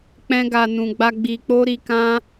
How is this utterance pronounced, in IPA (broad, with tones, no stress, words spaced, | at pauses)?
k͡pɛ̃˦ɡa˧nũ˧ɡ͡ba˦ ɡ͡bi˧k͡po˦ ɾi˧ kã˦